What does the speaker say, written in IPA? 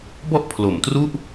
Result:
b ɔ˥˩ ʔ pʰ l o˩˦ m t r u˥˩ ʔ

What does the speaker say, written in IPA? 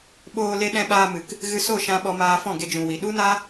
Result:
ɓ oː˧ l e˧ ɗ ɛ̃˧ ɓ aː˧ m ɨ˨ k | ɣ ɨ˧ s o˦˨ ʃ ã˧ ɓ ɔ˧ m aː˧ f ɔ̃˦˨ ɡ e˧ d͡ʒ ũ˨ w i˨ ɗ u˦ n a˦

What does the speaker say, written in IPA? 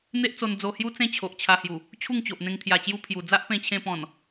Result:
n̪ e˦ ʔ t͡s o˧ n d͡z o˧ h j u˦ t͡s ẽ˦ t͡ɕʰ o˨ ʔ t͡ɕʰ a˧ h j u˨˩ | t͡ɕʰ u˥˧ ŋ t͡ɕ o˨ ʔ n̪ ẽ˧ ŋ t̪ʰ j a˨˩ t͡ɕ j u˧ pʰ j u˨˩ d͡z a˦ ʔ p ẽ˧ t͡ɕʰ ẽ˧ p ɔ̃˨˩ n

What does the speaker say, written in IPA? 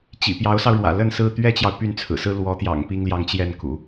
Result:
t͡ɕ ḭ˨˩ p j ɑ˧˥ ʊ̯ s ɑ˧ ʊ̯ ɻ w ä̰˨˩ l ə˥˧ n s ɹ̩˥˩ t̪ ɥ ɛ˥ t͡ɕ j ɑ˨ ʊ̯ p y˥˩ n t͡sʰ ɹ̩˨˩ s ɹ̩˥ l w ɔ˧˥ t̪ j ɑ̰˨˩ ŋ p i˥ ŋ l j ɑ˥˧ ŋ t͡ɕ j ɛ˥˩ n k ṵ˨˩˦

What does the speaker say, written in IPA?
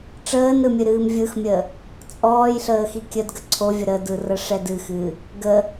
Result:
ʈ͡ʂ əː n ɾ ɯ mʲ ɨ ɾ ɨː m vʲ ɯ x mʲ ə | t͡sʼ ɔː j ɬ əː x i kʲ ə d ɡ ə ǀʰ o vʲ ə ɾ ə d ɯ r ə ʂ ɛ d ɨ x ɨ | ɡ ə

